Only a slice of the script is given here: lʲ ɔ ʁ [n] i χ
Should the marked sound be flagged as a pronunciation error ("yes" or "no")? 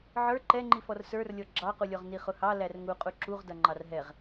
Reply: no